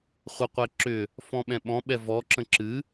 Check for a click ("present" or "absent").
present